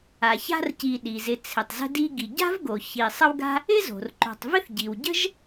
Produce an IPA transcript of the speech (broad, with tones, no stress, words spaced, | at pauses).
a˩ça̤˦r ci˨ɗi˩zɪ˨ t͡sʰɪ˩tˤzə̤˦di˦ɡi˩ ɟa̤˥vɡo˩ çi˨ sˤə˦wɡa̤˦ | ɪ˥zo̤˩rǃo̤˨tˤvɪ˥θ ɟi˩wɟə̤˥ʒ